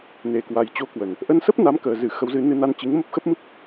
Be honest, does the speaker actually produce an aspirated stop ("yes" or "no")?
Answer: no